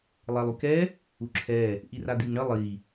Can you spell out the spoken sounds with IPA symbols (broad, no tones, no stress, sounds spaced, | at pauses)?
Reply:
lˠ ɛ lˠ y k ɛ | u ǁʰ ɛ | ʔ i r a d̪ i ŋ ɳ ə lˠ i